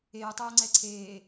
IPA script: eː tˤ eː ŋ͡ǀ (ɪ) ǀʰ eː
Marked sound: incorrect: ɛ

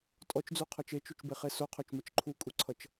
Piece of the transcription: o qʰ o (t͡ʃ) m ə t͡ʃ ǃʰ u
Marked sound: correct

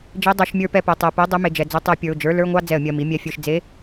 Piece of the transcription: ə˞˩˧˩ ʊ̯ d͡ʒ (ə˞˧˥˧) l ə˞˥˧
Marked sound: correct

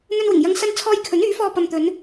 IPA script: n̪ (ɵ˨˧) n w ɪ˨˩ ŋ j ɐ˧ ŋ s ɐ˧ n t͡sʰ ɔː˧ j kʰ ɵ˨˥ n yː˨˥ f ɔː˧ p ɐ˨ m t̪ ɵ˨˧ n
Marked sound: incorrect: ɵ˧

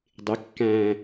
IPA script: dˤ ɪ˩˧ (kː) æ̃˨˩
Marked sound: correct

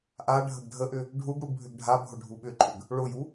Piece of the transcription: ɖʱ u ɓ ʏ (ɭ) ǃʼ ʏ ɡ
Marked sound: incorrect: none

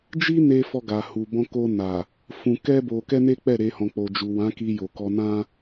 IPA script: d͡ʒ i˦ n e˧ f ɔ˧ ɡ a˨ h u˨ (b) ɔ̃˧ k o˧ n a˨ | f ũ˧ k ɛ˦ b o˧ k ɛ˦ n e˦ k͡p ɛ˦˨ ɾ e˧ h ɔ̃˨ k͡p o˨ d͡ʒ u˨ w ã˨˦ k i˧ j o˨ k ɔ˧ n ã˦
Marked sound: correct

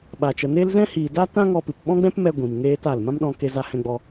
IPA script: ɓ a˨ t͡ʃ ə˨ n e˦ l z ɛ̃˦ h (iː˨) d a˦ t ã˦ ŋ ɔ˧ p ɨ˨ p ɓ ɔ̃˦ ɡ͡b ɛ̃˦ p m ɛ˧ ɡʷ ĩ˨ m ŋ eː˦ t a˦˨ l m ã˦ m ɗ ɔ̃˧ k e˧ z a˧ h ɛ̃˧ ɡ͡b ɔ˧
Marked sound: correct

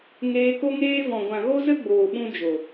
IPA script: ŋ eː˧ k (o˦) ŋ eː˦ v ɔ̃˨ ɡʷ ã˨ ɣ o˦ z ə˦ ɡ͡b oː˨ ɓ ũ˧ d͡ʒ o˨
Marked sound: correct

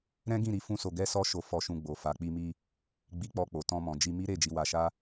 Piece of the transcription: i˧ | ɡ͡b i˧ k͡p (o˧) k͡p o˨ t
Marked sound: incorrect: ɔ˧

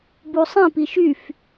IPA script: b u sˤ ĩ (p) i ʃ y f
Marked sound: correct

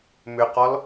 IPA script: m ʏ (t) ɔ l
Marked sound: incorrect: q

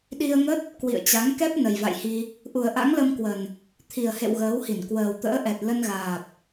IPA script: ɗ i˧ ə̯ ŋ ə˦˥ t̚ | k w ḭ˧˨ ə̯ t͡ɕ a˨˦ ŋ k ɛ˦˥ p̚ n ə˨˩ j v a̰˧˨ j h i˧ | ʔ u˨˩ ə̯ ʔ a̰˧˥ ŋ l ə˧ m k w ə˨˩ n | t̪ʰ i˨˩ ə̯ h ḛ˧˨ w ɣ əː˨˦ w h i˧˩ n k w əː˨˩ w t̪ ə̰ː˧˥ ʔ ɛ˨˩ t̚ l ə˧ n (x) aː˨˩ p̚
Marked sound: incorrect: ɣ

